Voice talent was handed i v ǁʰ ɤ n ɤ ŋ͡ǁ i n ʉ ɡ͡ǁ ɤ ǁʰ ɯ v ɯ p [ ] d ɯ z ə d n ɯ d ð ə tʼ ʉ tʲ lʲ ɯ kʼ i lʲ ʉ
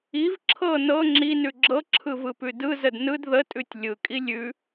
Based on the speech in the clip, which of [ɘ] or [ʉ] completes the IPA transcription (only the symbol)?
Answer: ʉ